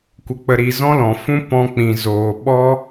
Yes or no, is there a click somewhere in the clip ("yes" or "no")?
no